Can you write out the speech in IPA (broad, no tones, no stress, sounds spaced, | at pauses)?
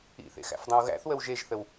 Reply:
ḭ θ ḛ x æ̰ f dˤ ɐ̃ w ɣ æ̰ θ w ə w ʒ e ʒ θ ə w